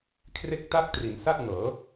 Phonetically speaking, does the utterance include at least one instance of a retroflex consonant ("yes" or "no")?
no